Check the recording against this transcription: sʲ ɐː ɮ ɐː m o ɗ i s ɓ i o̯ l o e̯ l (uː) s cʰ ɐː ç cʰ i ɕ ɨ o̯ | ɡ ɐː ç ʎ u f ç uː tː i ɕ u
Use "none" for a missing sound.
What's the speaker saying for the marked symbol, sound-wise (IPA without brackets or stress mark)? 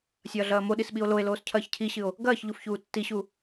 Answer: oː